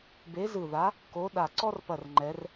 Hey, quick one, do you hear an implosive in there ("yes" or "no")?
yes